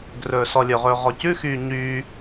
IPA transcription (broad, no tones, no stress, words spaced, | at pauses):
ɡrɵːsɔlʲɵʁɵː ʁɔcʉxyː ɲyː